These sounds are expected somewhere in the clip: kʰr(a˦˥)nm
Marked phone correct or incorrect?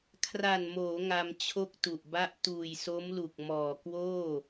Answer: incorrect